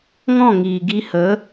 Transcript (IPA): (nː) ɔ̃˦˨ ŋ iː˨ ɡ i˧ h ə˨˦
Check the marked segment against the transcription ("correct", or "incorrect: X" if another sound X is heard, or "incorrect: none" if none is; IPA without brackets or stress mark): incorrect: ŋ